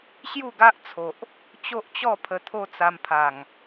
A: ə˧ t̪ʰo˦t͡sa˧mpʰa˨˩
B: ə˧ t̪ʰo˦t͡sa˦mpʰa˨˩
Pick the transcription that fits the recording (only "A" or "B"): A